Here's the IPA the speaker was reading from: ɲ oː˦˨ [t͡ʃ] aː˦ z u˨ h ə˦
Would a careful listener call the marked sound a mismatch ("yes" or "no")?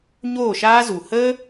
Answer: yes